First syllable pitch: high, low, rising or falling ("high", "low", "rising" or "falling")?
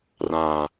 low